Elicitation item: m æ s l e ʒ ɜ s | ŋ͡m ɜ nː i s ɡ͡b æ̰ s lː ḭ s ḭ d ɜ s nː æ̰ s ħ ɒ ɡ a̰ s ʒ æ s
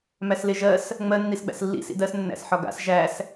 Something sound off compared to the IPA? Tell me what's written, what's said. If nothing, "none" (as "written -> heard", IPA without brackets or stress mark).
none